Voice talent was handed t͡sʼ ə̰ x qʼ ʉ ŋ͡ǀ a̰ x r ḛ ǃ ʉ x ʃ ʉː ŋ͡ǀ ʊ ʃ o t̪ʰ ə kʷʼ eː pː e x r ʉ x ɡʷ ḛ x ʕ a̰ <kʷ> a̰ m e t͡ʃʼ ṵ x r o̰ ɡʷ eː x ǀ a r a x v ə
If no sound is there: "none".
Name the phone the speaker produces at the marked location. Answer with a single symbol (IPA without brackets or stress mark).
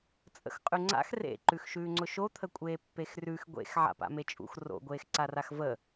p